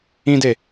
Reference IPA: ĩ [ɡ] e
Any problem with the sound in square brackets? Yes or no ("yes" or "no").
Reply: yes